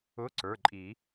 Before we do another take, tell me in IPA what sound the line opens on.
ʊ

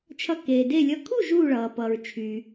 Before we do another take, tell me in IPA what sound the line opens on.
t͡ʃʰ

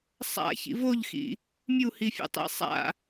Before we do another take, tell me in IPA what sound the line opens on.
sˤ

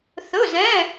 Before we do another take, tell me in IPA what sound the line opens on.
θ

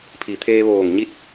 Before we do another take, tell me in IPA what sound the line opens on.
pʰ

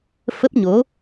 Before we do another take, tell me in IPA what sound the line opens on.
f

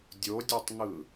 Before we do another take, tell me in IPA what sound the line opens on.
dʲ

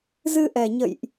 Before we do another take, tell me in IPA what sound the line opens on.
z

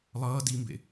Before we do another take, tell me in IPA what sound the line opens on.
lˠ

